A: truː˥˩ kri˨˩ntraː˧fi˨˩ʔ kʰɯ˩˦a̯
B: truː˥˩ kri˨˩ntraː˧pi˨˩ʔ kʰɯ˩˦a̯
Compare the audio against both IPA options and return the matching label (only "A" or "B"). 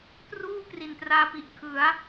B